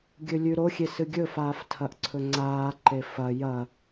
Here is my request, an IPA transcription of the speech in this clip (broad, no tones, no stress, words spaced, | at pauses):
ɡʲɵlʲʉɾoxʲe sɨɡʲɵfaːf tʰɐʔǀʰɵŋ͡ǀaːǃe fɐ jɐ